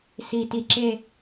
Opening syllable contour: low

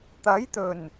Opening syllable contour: rising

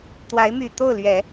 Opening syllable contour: rising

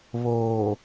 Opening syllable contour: low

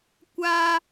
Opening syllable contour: high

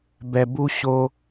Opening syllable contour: low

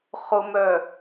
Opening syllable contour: low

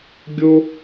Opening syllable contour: high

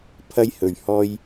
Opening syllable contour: high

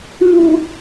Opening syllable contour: low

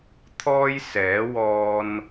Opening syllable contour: high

